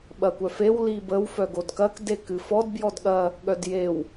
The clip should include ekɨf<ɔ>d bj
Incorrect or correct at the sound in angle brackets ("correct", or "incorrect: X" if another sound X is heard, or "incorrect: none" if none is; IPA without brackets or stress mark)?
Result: correct